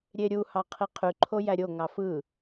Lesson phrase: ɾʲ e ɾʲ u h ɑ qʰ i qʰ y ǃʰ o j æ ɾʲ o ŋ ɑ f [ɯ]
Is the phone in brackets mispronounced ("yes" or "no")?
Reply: no